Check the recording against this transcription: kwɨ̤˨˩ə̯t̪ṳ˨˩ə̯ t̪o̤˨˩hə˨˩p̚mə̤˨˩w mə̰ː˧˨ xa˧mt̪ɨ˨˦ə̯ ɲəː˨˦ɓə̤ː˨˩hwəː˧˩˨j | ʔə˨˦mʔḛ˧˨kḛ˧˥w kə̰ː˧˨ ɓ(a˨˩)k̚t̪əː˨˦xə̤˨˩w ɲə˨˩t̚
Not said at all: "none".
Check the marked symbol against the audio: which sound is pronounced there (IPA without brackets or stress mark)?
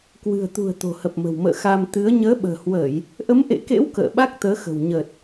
a˦˥